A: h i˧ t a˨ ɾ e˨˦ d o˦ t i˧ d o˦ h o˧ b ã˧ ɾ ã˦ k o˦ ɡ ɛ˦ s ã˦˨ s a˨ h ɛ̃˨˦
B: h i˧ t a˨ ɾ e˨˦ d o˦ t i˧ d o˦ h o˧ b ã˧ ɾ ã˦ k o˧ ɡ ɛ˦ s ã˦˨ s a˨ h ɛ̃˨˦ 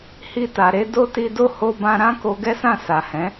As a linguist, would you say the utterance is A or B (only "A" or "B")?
B